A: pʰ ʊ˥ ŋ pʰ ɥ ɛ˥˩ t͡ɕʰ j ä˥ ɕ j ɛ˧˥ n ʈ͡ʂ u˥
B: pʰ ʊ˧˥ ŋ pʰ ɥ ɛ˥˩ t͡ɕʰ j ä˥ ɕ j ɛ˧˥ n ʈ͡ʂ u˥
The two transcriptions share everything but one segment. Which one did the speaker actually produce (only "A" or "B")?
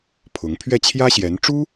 B